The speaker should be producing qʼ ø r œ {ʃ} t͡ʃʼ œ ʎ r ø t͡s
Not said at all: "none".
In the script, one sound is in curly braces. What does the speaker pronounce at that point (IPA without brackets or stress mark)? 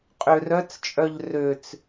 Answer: t͡s